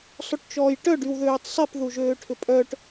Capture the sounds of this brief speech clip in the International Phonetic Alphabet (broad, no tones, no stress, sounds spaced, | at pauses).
sˤ o ʈ t͡ʃ ɔː j ʈ œ ɖ y w ð øː tˤ sˤ i p ð u ʒ øː ʈʰ ʏ pʼ œ ʈ